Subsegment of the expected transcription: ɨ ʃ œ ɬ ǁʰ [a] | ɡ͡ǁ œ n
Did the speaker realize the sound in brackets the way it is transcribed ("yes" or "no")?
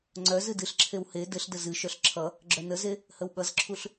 no